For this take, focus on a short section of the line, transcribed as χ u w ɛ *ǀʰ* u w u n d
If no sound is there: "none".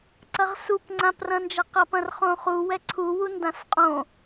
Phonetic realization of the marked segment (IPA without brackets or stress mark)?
ǀʰ